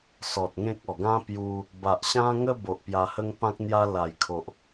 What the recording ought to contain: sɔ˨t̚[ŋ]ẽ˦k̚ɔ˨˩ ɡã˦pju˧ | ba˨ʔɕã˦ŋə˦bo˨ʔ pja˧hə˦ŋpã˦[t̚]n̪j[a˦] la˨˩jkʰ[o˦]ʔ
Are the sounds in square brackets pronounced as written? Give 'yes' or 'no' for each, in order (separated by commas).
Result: yes, no, yes, no